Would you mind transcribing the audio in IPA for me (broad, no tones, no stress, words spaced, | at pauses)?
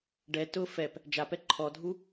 ɖɛ tʊ fɛp | d͡ʒapɛ ǃʰɔdʱu